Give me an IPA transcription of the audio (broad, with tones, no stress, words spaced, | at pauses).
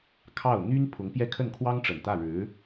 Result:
kʰɑ˥˩ʊ̯ n̪y˥n pʰʊ˧˥ŋpjɛ˥˧ kʰə˥˩nkʰwɑ˥ŋʈ͡ʂə˨˩n t̪ä˥˩ɻɻ̩˧˥